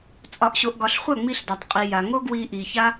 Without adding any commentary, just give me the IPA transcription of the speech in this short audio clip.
t͡sʼ ɒ˨ ʔ ɕ o˨ ʔ ɡ ɒ˨ ɬ χʷ a˦˨ ŋ͡m i˧ ɬ d a˨ tˤ qʼ i˨ j a˨ ŋ o˦ ɡ w i˧ ʔ i˨ ç a˦

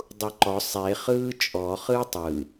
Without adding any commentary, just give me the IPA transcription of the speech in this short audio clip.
dˤ u ǃ ɔ sˤ e χ ɯː t͡ʃʼ ɔ χ ɯː tˤ ɯ

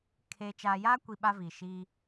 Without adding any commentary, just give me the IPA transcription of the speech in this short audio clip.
kʰ e˨ t͡ʃ aː˨ j aː˦ kʷ i˨ ɓ a˦ v i˨ ʃ i˦

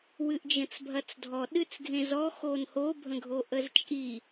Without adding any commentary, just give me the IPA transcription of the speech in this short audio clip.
w ɨ ʔ d͡ʒ ə̃ t͡s bʱ ɐ t͡s dʱ ɔ ɗ ɨ t͡s ɡʱ ẽ z ɔ x o n h o bʱ ə̃ ɡʱ o ʔ ə z t͡ʃʼ i

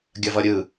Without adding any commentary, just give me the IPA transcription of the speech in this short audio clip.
ɡʲ ɐ v ʌ ɾʲ ɯ

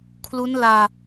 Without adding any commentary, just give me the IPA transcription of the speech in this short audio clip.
kʰ l u˦˥ n l aː˧

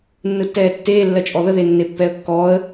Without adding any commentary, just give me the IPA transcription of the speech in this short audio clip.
nː ɯ tː ɛː tː eː lː ɜ t͡ʃʼ ɔ ð ə ð e nː e pː ɛ ə̯ kː ɔː ə̯

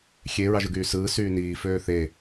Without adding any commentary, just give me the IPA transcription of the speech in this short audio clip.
xʲ e ɹ ɑ ʒ ɯ ɡ yː s ɯː s yː n iː f øː θ e

